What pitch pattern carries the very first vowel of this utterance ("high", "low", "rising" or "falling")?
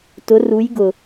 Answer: rising